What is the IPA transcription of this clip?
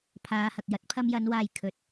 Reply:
pʰ aː˨˧ h ɐ˨ k̚ j ɐ˨˥ t̚ pʰ ɐ˧ m j ɐ˨˧ n w aː˨ j kʰ ɵ˨ t̚

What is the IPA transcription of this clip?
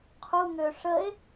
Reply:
qʰ u ŋ ø ʂ ə e̯

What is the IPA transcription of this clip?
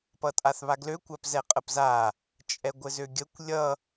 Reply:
p ʌ tʼ a θ β a ɡ l ø kʷ æ p z ɛ qʼ ə p z a | t͡ʃʼ ɛ ɡʷ ɘ z ø ɡʲ ə kʷ lʲ ʌ

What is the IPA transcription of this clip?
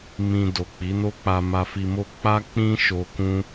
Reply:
m ĩ˧ d o˨ k͡p i˨˦ n o˦ k͡p a˧ m a˧ f i˧ m o˦ k͡p a˦ k͡p ĩ˦ ʃ o˧ k ũ˦

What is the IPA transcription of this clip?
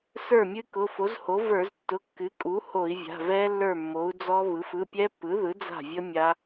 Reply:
s ə˞˥˩ mʲ ɨ˦˥ k ʊ˩˧˩ f o˩˥ z h o˩˥ v ə˞˧˩˧ z tː ʊ˩˧˩ kː ɨ˩˥ kʼ u˩˥ h o˧˩˧ i̯ vʲ a̤˩˧˩ v ɛ˦˥ lː ə˞˥˩ mː o˩˥ u̯ d͡z ɔ˦˥ β ɯ˩˥ f ɯ˩˧˩ pʲ ɛ˦˥ pː ɯ˩˥ ð ɯ˩˥ d͡z a̤˥˩ vʲ ə˦˥ mʲ a˦˥

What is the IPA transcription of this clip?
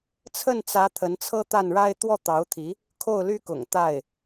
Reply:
t͡sʰ ə˥˩ n t͡s ä˧˥ t̪ʰ ə˧˥ n t͡sʰ ɤ˥ t̪ a˥˩ n ɻ a˥ ɪ̯ t̪ w ɔ˥˩ t̪ ɑ˧˥ ʊ̯ t̪ʰ i˧˥ | kʰ o˥˩ ʊ̯ l y˥ k ʊ̰˨˩ ŋ t̪ a˥˩ ɪ̯

